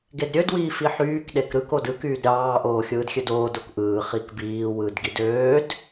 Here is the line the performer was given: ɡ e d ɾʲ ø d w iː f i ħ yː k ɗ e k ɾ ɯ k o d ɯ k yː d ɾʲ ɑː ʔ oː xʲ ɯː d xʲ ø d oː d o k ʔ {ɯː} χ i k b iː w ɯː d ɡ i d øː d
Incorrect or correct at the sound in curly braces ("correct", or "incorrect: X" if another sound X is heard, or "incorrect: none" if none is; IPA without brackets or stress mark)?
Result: correct